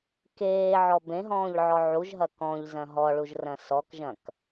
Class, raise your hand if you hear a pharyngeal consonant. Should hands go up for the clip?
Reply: yes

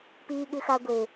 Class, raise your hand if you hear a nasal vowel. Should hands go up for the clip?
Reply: no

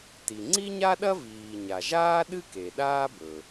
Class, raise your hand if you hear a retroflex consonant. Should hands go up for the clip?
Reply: no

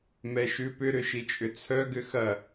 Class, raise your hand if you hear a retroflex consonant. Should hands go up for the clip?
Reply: no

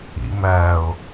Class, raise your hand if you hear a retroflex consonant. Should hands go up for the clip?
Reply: no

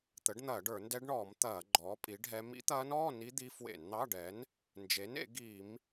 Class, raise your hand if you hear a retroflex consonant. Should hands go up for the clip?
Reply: yes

